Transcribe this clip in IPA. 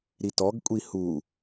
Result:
ɾ i t ɔ ɡ kʷʼ i h u

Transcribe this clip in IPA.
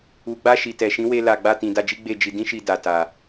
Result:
u˨ ɡ͡b a˧ ʃ i˨ t ɛ˨ ʃ ĩ˨˦ w e˧ l a˨ ɡ͡b a˧ t ĩ˨ d a˧ d͡ʒ i˦ ɡ͡b e˦˨ d͡ʒ i˧ d ĩ˦ ʃ i˧ d a˨ t a˨

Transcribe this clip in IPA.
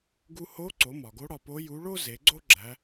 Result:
ɡ u˧ h o˧˥ ǀ o˩˧ m ɒ˩ ɡ o˧˥ ɽ ɒ˩˧ p o˧˥ j u˧˥ ɭ o˥ z e˩˧ ɡ͡ǀ o˥ ɡ͡ǁ æ˧˥

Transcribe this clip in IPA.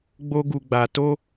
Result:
ɡ͡b o˦ ɡ u˧ ɡ͡b a˧ t o˦

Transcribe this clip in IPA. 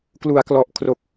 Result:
k l u˩˦ a̯ k l ɔ˨˩ ʔ kʰ r o˨˩ k̚

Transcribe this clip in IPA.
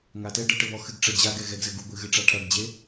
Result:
ŋ a t ɛ ɖ ɘ ʈ ɘ β ɔ x ɨ ɡ ʈ͡ʂ ɐ d͡ʑ a ɡ ɛ ɣ ɛ ɡ z ɘ ɡ u ɡʷ ɨ ɣ ɨ ʈ͡ʂ a ʈʰ ɐ ɡ d͡ʑ e

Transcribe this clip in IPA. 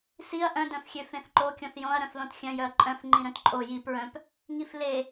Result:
s i ɐ̯ ʔ œ̃ d œ̃ f xʲ ø f ẽ θ ǃ o kʲ õ θ j õ ɐ̯ ɾ œ̃ f l õ t xʲ œ̃ j œ ɐ̯ ǃʼ œ̃ f ŋ͡ǃ ĩ ɾ œ̃ t ǃʼ o j i p ɹ œ̃ p | ŋ i f l e

